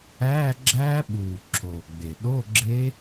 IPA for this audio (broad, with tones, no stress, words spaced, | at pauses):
æː˧˥˧ɡ͡ǁæː˦˥ɓuː˨˩ ǁʰoː˨˩ɡ͡be˨˩ ɗo˧˥˧ɡ͡ǁe˦˥